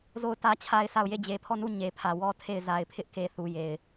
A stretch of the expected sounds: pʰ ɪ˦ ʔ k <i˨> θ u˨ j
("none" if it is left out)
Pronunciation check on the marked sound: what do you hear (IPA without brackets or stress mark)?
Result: e˨